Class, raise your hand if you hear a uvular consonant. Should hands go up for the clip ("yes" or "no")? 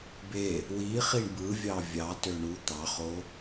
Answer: yes